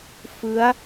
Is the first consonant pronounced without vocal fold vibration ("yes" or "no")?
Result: yes